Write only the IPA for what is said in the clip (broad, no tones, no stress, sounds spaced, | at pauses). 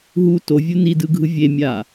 ɦ u t o vʲ u n i d ɯ ɡʱ ɯ vʲ e mʲ a